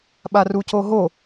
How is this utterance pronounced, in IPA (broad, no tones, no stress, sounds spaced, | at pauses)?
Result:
ɓ a r u c o ɦ o